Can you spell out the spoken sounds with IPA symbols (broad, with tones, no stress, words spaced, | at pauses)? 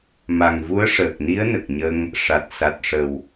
ma˨˩ŋ vu˧˥ə̯ʂəː˨˩k̚ni˧˥ə̯ nə˨˩k̚ɲə˧ŋ | ʂa˨˩t̚ sa˨˩t̚ʂə˨˩w